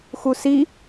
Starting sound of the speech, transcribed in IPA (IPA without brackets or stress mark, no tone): x